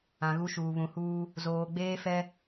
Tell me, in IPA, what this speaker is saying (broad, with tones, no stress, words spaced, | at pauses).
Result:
ã˨ɣu˦ʃuː˨ βũ˨huː˦ | zoː˨ɡ͡beː˦fɛ˦